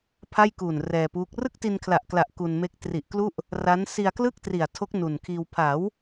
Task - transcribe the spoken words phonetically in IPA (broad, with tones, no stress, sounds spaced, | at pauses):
pʰ a˥˩ j k uː˨˩ n r ɛː˧ p uː˦˥ k̚ r ɯ˥˩ k̚ t i˧ n kʰ l a˨˩ ʔ k l a˨˩ ʔ k u˧ n m e˦˥ k̚ t r i˨˩ ʔ k l u˥˩ ʔ | r a˦˥ n s i˧ a̯ k l ɯ˥˩ k̚ t r i˨˩ a̯ tʰ o˦˥ k̚ n u˨˩ n kʰ iː˧ w pʰ a˩˦ w